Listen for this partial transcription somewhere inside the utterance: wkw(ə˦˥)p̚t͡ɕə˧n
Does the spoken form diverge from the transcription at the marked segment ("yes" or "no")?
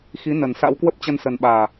no